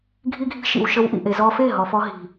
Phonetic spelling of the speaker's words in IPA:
ɡʱi˦ɡʱi̤˦ ʃḭ˨w ʃə˧wʔḭ˨ʔe˨ zɔ˧fe˦˨ɦɔ˨fɔ˧ ɦi̤˨

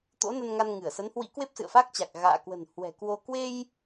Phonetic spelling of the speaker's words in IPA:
t̪o̰˧˥nə˧n ŋa˧nŋɨ˧˩ə̯sə˨˦nhwḭ˧˥ kwe˦˥p̚sɨ̰˧˨ə̯fa˦˥k̚t͡ɕa˨˩k̚ ɣa̰ː˧˨kwə̤˨˩n hwɛ̤˨˩kwo˧ kwe˧j

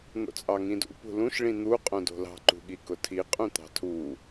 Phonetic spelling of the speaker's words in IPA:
n̪o̰t͡sʼɑŋĩdṵ pṳlũʃ ɭĩn̪u qʼõdo̤lɑ̤ ǃṳɠikʊtʰi qʼũt̪ɑ̤tʰu

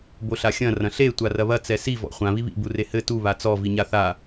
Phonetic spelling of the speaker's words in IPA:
boɬaxʲɐ̃ rɐ̃ɬe tʷarɐβɐ t͡sɛsi vɔ̰χʷã βiβḭ burehɘ tu βat͡sɔ viɲaθa

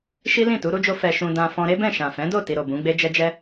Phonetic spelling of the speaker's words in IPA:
ʃi˦lĩ˦˨ tu˨˦ɾu˦d͡ʒo˦ fɛ˧ʃũ˧dã˧ fɔ̃˧ɾe˦bɛ̃˦˨ ʃã˨fɛ̃˨˦do˦˨ ti˧ɾo˨bũ˨˦ɡ͡be˦ d͡ʒɛ˧d͡ʒɛ˧

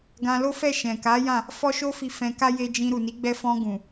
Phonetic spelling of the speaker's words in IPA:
ɡã˧lo˦fɛ˦˨ ʃɛ̃˨ka˨˦ jã˦˨ | fɔ˦ʃo˦fi˧ fɛ̃˧ka˦ je˧d͡ʒĩ˧ɾu˨ ni˨˦ɡ͡bɛ˧fɔ̃˧ ɡũ˨

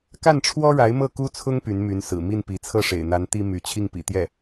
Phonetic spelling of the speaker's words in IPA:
ka˥˩nʈ͡ʂʰwɔ˥ɻa˧˥ɪ̯ mɤ˥˩ku˥t͡sʰʊ˥ŋ py˧˥nmy˧˥n sɹ̩˨˩ mi˥˩npi˧˥ t͡sʰɤ˥˩ʂḛ˨˩ɪ̯n̪a˧˥n t̪i˥my˧˥ t͡ɕʰi˥˩ŋpḭ˨˩ t̪jɛ˥˩

